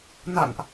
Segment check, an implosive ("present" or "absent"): absent